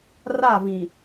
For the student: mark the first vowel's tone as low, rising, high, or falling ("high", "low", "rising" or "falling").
falling